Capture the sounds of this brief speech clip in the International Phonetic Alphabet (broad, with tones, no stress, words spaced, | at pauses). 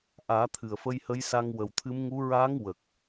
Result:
ʔaː˨˩˦ t̪ʰɨ˨˩ə̯fə˧jhə˧˥jsa˧ŋ wə˨˩wt̪ʰɨ˧˥mŋu˧˥ ɹa˧˥ŋwə˨˩k̚